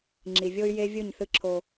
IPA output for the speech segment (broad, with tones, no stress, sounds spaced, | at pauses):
ŋ͡ǁ i˨ vʲ o˦ y̯ j e˦ vʲ ɯ˦˨ ɲ θ ɯ˦ ǁʰ o˦